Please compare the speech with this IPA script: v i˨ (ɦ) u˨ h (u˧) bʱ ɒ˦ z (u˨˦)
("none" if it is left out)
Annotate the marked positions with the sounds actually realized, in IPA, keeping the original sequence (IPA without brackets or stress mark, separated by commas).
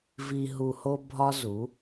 ɦ, o˧, u˨˦